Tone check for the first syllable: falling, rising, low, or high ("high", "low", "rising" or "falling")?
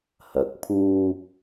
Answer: rising